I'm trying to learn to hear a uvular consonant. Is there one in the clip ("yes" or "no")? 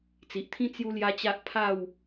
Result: no